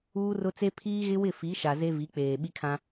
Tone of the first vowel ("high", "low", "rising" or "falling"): high